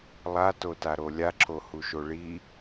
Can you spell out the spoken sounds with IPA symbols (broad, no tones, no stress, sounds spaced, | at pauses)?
lˠ a t o t a ɾ o lʲ a ǁʰ o h u ʃ o ɭ i